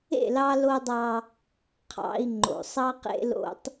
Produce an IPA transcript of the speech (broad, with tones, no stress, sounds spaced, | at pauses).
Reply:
ḛ˦˨ l ɑ˦ l o˦ dˤ ɑ˦ | qʰ ɑ̰˨ i̯ ŋ͡ǃ o̰˨ sˤ ɑ˦ q ḛ˦ l o̰˦ tˤ